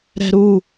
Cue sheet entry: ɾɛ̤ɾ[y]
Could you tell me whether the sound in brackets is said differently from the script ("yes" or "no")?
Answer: yes